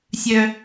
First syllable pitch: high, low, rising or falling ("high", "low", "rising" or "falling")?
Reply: high